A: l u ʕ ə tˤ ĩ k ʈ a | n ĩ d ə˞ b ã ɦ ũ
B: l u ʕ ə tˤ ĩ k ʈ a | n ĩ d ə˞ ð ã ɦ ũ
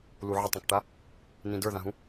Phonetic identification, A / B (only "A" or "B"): B